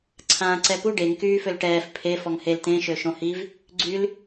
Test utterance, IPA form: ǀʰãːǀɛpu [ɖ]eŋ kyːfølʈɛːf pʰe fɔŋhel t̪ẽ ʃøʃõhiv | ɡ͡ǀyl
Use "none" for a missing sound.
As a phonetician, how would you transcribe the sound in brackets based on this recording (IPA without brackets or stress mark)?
ɖ